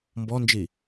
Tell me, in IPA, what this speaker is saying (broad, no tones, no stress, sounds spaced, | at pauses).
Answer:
m b ɔ n d͡ʒ i